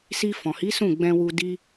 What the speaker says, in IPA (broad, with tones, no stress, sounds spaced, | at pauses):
s i˧ f ɔ̃˨ h i˨˦ s ũ˦˨ ɡ͡b ɛ̃˧ w u˧ d i˧